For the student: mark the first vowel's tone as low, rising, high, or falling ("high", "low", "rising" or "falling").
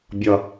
low